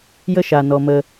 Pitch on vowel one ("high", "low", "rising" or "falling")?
high